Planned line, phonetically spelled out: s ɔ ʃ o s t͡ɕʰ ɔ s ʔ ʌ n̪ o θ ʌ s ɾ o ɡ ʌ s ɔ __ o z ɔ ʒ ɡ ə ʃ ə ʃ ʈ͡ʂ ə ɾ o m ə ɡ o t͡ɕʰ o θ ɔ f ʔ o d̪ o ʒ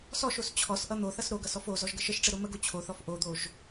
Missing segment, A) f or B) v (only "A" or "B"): A